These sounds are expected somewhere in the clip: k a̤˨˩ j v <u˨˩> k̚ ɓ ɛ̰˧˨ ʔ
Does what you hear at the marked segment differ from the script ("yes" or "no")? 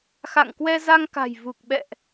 no